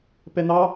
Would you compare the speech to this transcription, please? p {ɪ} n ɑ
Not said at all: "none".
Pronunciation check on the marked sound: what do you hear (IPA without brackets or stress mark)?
ɛ